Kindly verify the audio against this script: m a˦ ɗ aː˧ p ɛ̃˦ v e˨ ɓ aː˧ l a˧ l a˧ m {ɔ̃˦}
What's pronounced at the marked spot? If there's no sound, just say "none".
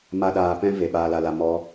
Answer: ɔ˦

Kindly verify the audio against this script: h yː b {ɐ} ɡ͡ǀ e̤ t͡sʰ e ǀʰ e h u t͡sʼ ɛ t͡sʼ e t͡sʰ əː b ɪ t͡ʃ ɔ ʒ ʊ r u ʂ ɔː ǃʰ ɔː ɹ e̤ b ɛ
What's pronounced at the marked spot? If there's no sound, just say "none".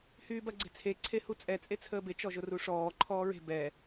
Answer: ɐ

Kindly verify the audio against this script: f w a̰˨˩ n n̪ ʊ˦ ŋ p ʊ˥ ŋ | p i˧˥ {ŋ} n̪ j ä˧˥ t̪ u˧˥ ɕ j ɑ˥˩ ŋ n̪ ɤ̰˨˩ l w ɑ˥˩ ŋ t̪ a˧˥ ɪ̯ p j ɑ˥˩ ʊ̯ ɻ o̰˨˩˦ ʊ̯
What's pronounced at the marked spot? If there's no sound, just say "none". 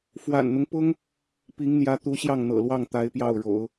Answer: ŋ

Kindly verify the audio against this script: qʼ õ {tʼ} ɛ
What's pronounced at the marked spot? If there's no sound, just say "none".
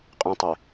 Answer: tˤ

